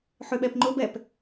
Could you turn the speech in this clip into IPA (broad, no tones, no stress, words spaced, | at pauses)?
ħøɓɛpŋ͡ǃʊbɛp